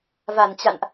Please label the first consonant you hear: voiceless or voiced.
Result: voiced